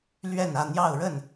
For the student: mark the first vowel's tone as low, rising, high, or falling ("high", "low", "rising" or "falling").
falling